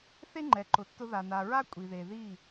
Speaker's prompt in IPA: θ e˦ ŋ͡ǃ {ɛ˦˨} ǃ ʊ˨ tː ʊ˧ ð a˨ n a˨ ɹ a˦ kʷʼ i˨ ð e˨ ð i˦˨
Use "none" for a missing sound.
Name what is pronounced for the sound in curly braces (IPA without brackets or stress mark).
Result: ɛ˨